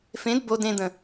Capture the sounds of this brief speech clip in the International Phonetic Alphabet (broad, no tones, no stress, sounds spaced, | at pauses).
f ẽ d b o d ẽ d̪ ə̃